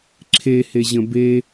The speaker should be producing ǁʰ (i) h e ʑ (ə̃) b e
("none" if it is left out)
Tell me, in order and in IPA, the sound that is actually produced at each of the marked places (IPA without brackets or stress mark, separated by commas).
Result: e, ə̃